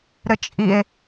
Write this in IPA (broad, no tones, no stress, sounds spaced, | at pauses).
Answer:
ɾ ɘ t͡ʃʼ i e̯